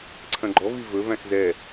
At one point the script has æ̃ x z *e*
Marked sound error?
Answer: yes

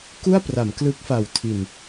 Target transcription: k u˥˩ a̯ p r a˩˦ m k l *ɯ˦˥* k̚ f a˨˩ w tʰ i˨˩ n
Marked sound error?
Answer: no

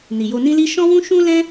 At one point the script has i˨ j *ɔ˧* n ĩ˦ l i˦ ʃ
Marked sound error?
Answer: yes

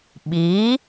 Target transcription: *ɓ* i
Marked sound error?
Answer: no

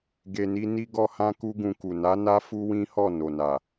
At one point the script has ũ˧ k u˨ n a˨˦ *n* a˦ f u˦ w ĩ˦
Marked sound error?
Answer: no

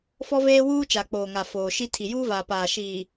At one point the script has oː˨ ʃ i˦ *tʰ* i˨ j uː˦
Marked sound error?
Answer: no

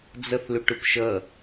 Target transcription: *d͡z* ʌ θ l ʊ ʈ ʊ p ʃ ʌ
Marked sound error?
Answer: no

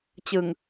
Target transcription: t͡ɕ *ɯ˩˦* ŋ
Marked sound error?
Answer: yes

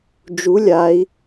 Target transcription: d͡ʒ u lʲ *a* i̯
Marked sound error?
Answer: no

